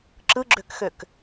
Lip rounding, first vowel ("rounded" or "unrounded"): unrounded